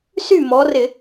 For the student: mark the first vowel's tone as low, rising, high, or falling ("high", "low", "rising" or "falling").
falling